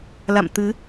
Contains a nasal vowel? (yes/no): no